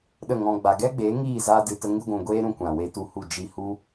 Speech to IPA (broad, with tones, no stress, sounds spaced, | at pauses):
ɗ ə˦˨ ŋ ɔ̃˧ ɡ͡b a˨ ɡ ɛ˦ ɡ͡b eː˨˦ ŋ iː˦˨ z aː˧ d ɨ˨ t ə˧ ŋ ɨ˧ ɡʷ ũ˨ ɡʷ eː˦ ɾ ũ˧ kʷ ã˨ w e˧ t u˧ h u˦˨ d͡ʒ i˧ h u˦